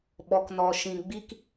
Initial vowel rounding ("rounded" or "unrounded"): rounded